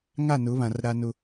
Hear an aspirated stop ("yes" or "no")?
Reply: no